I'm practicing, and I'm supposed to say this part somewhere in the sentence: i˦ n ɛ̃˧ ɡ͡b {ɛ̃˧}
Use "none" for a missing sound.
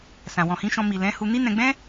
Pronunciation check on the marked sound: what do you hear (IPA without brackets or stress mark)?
ɛ̃˦